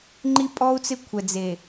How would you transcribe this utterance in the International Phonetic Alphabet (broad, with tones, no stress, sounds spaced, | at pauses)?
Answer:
ŋ͡ǃ i˦ pʼ ɔ˦ u̯ t͡s ɪ˦ kʷʰ ɛ˨ d͡z e˨